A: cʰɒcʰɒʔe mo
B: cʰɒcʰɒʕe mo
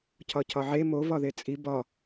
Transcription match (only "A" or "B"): B